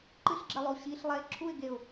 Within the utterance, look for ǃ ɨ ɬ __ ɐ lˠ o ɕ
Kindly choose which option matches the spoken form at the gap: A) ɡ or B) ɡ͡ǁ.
B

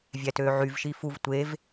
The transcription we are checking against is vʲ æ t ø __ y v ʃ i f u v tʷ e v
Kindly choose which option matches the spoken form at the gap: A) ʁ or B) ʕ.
B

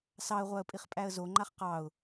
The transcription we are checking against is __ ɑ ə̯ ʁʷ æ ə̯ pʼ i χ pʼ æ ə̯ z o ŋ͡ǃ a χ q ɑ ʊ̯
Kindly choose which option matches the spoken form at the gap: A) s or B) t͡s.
A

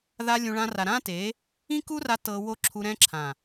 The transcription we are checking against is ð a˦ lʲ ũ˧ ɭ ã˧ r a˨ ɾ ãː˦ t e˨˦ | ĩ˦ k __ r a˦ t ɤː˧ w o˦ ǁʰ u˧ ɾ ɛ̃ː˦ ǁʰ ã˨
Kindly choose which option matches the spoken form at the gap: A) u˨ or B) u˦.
B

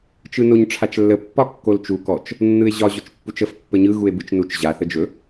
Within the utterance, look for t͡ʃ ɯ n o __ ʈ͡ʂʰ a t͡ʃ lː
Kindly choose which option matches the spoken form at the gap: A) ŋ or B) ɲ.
B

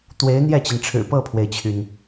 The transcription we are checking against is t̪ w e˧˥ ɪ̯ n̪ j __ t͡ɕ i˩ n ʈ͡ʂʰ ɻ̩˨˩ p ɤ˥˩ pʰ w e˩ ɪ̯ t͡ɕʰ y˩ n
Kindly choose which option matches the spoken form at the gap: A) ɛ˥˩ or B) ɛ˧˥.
A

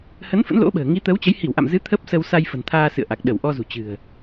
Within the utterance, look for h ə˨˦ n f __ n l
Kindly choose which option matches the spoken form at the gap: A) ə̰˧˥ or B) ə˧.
A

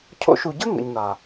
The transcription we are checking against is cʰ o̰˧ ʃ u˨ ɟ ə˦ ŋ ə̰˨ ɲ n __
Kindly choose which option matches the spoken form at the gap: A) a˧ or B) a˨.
B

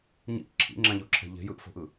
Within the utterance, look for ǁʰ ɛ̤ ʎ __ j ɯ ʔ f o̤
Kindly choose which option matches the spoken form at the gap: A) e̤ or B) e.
A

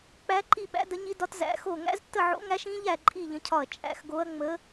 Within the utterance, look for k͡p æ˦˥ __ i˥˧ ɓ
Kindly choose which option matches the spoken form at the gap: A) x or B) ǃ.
B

